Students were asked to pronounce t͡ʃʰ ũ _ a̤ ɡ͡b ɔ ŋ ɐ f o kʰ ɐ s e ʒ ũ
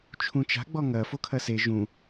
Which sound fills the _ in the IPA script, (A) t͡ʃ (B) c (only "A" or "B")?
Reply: A